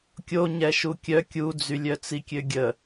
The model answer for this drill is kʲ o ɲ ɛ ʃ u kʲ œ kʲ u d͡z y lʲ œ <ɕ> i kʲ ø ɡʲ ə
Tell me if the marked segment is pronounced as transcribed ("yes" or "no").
no